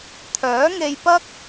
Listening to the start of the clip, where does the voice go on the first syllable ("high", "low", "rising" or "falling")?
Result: rising